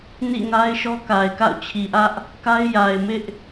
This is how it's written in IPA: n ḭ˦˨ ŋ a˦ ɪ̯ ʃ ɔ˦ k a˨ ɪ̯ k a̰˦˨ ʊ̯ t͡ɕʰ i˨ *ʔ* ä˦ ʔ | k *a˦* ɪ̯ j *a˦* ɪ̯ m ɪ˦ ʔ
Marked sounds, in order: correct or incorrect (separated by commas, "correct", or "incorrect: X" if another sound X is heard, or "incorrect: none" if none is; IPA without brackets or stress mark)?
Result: correct, correct, incorrect: a˨